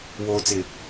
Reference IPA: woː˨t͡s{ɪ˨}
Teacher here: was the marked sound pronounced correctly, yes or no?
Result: yes